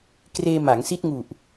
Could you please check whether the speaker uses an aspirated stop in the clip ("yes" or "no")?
no